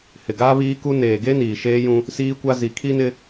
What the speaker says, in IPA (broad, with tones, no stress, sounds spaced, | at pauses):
h ɪ˨ ɡ aː˦ β iː˦ k u˦ n eː˨ ɡ e˦ n iː˨ ʃ eː˦ j ũ˦ | s iː˦ kʷ a˦ z i˨ kʰ i˦ n ɪ˦